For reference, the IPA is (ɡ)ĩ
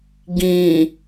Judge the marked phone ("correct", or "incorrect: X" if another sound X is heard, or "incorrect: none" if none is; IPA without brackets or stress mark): correct